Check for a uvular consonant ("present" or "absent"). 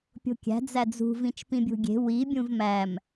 absent